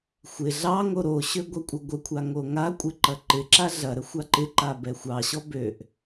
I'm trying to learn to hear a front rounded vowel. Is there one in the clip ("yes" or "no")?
yes